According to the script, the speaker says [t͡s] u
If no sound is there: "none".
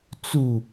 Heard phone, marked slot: t͡s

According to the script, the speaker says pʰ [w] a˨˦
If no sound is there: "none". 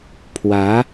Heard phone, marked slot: w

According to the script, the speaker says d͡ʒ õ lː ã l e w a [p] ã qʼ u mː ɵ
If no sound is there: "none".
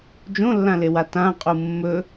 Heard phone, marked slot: t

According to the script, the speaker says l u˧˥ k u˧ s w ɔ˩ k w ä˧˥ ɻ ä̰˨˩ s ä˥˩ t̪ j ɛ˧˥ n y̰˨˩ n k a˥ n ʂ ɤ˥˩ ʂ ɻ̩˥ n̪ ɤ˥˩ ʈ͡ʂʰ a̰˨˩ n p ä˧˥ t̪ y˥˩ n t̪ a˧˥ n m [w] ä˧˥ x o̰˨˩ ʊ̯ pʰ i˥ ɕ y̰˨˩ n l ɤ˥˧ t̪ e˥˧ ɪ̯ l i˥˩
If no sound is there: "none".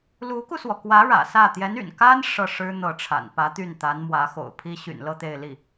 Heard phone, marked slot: w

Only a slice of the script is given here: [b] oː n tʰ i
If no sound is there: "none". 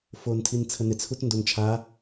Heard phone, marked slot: f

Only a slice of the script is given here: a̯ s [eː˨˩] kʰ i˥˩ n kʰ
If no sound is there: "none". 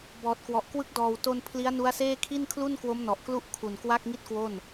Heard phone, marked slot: eː˥˩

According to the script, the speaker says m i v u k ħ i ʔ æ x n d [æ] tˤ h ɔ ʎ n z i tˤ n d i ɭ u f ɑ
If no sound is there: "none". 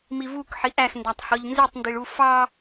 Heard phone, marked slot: æ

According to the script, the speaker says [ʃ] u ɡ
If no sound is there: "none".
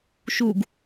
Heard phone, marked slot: ʃ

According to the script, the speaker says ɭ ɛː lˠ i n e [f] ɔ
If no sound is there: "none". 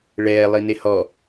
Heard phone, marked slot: h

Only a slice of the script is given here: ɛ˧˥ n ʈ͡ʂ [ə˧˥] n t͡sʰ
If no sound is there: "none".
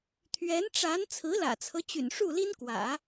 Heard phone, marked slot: a˧˥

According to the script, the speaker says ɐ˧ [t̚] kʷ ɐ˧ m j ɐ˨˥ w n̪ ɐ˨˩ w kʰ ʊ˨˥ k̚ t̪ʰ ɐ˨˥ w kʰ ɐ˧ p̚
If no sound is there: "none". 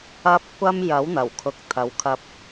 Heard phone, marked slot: p̚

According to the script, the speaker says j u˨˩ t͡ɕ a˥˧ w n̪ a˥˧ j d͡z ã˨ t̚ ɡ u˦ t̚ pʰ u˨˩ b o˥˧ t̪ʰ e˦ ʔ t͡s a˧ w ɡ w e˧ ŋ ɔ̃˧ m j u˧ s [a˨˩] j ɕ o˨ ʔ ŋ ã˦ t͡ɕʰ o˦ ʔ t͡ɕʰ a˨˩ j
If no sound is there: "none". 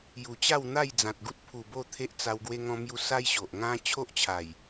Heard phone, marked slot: a˦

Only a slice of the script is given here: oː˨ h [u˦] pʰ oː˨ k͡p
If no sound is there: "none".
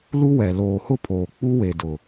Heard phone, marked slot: ʊ˦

